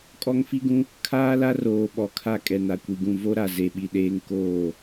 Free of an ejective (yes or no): no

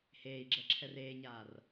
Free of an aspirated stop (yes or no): no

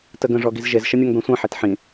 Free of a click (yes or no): yes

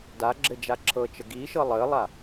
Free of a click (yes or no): no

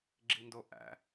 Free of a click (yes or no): no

